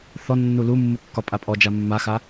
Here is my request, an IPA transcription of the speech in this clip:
θ ɔ nː u l u mː u kː ɒ pʼ a pʼ ɔ d͡ʒ a mː a x a

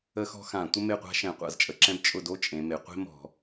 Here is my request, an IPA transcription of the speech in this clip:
ə˥ x ɔ̤˥ x ã˧˩˧ tʷ ə˥ m e˥˩ qʷ a̤˥ ʃ ɛ̃˧˩˧ qʷ a̰˧˩˧ z t͡ʃʼ ə˩˧ ǁ ɛ̃˥ b t͡ʃʼ ʊ˥˩ d o˥ t͡ʃʼ ẽ˩˧ m e˩˧ qʷ e̤˥ m ɔ̤˧˩˧

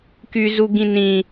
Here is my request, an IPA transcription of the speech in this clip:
k y z u ɡ ĩ n ĩ

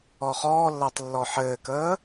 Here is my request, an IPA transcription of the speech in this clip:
ɔ χ ɔː lː ɜ tˤ lː ɔ ħ ɘː k əː

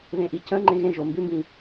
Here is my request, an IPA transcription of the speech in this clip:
β ẽ ʔ i c ə̃ ŋ͡ǃ ẽ ɣ ẽ ʒ o m b ʉ m b ĩ

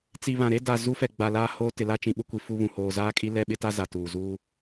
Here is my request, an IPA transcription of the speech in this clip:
t͡s i˨ β ã˨ ɾ e˦ d a˨ z u˦ f ɛ˨ ɡ͡b a˨ l aː˦ h oː˦ t ɪ˨ l a˦ t͡ʃ ĩ˨ ɓ ʊ˦ kʷ i˨ f u˦ β ũ˨ h oː˨ z aː˦ kʼ i˦ l ɛ˦ ɓ ɪ˦ t a˦ z a˨ t uː˨ z uː˦

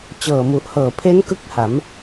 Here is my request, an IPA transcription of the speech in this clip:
t͡ɕ ɤː˨˩ m u˨˩ ʔ h ɤː˨˩ pʰ e˦˥ n k ɯ˥˩ k̚ h a˩˦ m

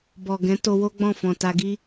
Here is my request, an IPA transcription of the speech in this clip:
b ɔ˨ ɡ ɛ̃˨˦ t o˧ w o˦ ɡ͡b ɔ̃˦˨ f ɔ̃˨ t a˧ ɡ i˦

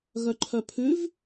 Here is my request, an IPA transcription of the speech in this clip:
ɣ œ ǃʰ œ pʰ ʉ v

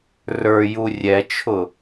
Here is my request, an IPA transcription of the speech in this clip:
r ə˞ j u rʲ ɛ t͡ʃʰ ʊ

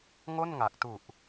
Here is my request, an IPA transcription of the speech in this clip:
ŋ o˥˩ n ŋ a˨˩ k̚ t u˨˩ ʔ

